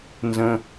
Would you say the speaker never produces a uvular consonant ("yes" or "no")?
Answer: yes